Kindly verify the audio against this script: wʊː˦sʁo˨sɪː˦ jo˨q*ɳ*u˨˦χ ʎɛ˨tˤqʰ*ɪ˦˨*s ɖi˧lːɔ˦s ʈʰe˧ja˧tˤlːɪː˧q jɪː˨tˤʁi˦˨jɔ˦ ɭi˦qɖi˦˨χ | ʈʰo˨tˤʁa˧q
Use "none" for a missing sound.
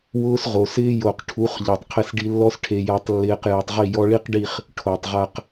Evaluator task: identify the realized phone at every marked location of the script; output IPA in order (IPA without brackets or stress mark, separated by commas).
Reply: ʈʰ, ɪ˦˨